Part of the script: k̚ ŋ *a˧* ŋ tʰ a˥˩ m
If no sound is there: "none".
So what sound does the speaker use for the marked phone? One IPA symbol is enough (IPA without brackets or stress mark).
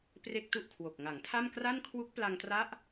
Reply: a˩˦